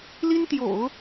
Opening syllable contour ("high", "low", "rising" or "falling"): high